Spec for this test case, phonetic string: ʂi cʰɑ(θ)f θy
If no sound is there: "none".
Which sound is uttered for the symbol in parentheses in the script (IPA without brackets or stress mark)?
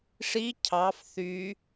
none